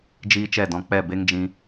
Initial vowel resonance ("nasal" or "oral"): oral